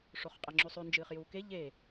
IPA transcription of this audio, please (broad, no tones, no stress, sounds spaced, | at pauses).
ʂ o χ qʼ ɐ ŋ͡ǁ ʉ sˤ ʉ n d͡ʒ ɨː χ j uː k e ʎ e